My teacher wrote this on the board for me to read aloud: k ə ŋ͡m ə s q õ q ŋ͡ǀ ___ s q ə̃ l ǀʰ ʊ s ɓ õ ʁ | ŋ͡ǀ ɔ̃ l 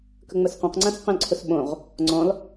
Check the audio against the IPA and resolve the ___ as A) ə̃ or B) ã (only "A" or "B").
B